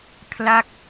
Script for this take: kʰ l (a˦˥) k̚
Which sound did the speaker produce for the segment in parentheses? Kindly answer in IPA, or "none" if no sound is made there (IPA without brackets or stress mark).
a˦˥